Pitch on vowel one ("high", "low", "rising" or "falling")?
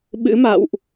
rising